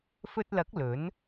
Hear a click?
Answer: no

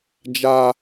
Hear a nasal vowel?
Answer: no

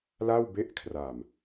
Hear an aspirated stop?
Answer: yes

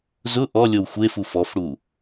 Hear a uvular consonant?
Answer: no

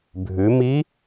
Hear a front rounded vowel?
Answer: no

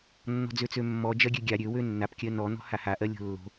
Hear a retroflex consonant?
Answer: no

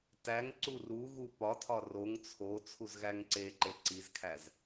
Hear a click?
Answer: yes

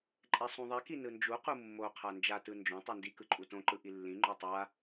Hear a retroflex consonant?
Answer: no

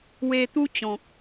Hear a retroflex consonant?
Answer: no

